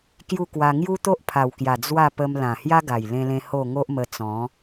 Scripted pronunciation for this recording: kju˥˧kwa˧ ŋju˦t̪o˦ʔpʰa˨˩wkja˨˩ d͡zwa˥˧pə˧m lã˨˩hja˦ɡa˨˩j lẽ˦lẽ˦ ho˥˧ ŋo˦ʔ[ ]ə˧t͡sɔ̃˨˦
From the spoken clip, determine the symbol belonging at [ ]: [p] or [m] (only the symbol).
m